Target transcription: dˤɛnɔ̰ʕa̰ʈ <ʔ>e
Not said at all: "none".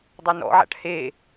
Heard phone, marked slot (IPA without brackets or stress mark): h